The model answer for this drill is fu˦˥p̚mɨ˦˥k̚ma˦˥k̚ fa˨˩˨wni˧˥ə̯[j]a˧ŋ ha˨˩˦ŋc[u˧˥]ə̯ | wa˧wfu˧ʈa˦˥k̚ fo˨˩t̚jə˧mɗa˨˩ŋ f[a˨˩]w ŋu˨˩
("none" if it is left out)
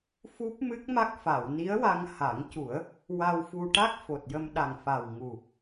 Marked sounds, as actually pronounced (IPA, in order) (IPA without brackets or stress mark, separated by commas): w, u˨˩˦, a˨˩